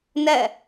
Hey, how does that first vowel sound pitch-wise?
falling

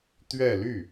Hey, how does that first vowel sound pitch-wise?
falling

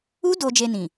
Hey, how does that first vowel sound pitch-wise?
high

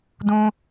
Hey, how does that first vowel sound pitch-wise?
high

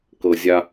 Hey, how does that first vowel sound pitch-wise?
low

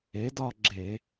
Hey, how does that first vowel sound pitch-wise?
rising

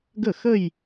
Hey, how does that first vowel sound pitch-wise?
falling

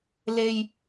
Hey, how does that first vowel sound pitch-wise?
low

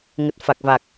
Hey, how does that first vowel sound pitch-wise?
low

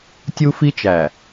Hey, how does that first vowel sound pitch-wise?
high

